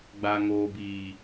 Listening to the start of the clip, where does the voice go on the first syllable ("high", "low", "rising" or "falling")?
low